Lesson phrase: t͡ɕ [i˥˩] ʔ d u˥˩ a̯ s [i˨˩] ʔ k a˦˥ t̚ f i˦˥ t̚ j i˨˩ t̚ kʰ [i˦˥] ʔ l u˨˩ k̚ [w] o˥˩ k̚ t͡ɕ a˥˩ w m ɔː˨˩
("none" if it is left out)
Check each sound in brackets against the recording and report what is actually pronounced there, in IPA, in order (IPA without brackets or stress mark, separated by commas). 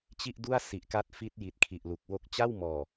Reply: i˥˩, i˨˩, i˨˩, w